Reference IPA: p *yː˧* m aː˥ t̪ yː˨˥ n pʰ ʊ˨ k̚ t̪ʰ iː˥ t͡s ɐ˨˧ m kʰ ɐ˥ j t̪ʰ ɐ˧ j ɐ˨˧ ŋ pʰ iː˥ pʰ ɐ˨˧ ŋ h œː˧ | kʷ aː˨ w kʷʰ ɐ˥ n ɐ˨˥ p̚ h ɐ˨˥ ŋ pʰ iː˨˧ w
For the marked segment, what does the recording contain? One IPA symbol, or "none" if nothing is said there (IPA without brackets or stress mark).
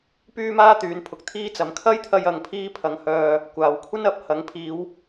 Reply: yː˥